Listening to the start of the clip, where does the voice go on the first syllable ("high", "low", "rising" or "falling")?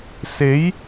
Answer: rising